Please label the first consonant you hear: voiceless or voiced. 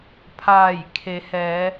voiceless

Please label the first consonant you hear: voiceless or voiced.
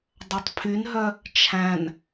voiced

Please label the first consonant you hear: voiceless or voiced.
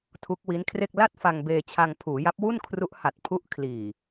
voiceless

